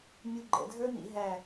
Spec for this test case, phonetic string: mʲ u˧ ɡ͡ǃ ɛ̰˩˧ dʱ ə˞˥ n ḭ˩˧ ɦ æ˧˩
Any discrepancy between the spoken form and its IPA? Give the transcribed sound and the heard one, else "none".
none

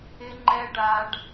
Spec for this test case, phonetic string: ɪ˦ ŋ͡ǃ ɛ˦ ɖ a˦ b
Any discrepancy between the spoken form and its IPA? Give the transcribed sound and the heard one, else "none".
b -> ɖ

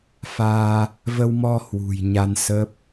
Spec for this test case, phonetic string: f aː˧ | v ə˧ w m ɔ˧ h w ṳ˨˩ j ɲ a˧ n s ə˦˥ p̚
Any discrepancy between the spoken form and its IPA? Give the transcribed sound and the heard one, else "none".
none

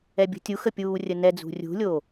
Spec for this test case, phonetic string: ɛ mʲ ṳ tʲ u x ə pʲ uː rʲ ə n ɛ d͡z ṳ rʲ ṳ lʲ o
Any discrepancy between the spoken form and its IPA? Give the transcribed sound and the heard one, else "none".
mʲ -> bʲ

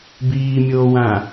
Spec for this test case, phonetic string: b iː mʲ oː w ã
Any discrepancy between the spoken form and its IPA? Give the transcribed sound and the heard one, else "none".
none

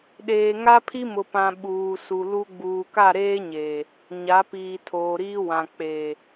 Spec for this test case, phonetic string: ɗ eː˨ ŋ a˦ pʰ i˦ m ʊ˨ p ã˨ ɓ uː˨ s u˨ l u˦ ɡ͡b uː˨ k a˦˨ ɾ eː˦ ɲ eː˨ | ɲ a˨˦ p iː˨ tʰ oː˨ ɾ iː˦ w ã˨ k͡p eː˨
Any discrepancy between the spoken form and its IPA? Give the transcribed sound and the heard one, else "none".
none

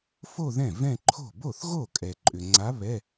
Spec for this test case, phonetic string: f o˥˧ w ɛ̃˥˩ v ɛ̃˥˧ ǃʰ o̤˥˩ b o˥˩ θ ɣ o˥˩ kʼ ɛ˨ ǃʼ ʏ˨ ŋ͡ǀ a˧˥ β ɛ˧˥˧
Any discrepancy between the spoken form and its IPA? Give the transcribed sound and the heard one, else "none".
w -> ð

